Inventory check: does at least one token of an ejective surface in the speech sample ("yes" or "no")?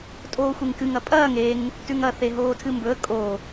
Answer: yes